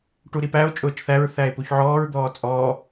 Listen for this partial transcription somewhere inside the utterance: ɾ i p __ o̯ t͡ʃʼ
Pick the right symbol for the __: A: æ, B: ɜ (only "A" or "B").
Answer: A